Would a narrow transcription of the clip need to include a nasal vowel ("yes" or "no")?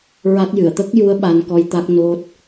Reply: no